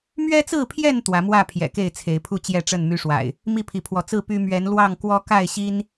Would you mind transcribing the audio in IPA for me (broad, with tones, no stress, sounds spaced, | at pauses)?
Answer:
m ɥ ɛ˦ t͡s ɹ̩˥˨ pʰ j ɛ˥˨ n t̪ w ä˨˦ m w ä˥˨ pʰ j ɛ̰˨˩ k e˥˨ ɪ̯ t͡sʰ e˨˦ ɪ̯ pʰ u˥˨ t͡ɕ j ɛ˥˨ ʈ͡ʂ ə˥˨ n m y˦ ʂ w a̰˨˩ ɪ̯ | m i˥˨ pʰ i˨˦ pʰ w ɔ˨˦ t͡s ɹ̩˥˨ p y˦ m ɥ ɛ˨˦ n l w ɑ˥˨ ŋ k w ɔ˦ k a˥˨ ɪ̯ ɕ i˦ n